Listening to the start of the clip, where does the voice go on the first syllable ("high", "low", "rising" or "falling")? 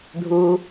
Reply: low